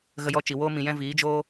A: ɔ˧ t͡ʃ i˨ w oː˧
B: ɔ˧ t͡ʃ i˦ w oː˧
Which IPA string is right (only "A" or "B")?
A